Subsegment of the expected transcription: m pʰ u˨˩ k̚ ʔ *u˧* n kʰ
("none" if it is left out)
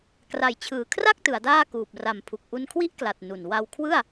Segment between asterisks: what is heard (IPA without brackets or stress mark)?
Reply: u˧